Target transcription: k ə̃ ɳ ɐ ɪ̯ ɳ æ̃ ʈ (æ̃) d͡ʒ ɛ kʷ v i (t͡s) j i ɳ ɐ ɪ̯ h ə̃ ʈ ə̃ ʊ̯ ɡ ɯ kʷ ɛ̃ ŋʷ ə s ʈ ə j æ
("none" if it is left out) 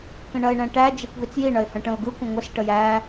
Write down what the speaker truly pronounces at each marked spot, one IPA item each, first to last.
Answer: æ, t͡s

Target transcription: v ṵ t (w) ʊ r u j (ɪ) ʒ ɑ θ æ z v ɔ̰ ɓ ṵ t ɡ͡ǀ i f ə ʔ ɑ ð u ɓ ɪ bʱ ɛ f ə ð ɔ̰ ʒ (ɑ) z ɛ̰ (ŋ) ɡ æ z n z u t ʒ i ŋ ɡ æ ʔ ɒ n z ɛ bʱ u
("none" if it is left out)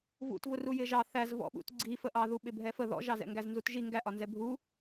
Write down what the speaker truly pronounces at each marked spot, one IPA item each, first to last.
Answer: v, ɪ, ɑ, ŋ

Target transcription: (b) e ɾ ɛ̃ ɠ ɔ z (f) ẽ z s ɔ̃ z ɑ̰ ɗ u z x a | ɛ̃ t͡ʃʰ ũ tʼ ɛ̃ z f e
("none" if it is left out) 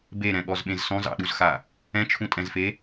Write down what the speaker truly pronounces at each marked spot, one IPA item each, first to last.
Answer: b, ɓ

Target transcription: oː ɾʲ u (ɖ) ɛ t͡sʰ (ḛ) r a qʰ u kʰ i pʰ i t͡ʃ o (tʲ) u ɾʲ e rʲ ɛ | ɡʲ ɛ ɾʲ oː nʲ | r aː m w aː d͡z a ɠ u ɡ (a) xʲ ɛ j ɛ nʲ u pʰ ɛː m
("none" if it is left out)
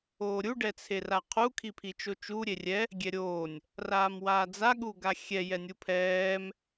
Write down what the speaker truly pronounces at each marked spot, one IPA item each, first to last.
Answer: ɖ, e, t͡ʃ, a

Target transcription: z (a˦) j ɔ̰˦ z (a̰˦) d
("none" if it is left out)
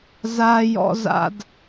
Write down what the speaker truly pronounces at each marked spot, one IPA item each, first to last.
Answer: a˦, a̰˦

